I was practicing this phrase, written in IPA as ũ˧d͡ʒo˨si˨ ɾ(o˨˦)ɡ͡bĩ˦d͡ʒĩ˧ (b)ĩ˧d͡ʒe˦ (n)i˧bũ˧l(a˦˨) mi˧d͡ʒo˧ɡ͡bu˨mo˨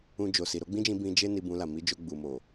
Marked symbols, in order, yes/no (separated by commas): yes, yes, yes, no